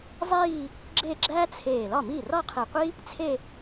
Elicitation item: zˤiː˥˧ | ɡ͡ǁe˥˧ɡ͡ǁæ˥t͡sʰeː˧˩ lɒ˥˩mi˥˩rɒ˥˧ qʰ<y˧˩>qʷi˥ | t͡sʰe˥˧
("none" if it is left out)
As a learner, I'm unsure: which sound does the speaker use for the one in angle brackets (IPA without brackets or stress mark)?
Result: e˧˩